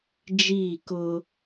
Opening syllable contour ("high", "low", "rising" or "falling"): falling